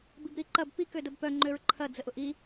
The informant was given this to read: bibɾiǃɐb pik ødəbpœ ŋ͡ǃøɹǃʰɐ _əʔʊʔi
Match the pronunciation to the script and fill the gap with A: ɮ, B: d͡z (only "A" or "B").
B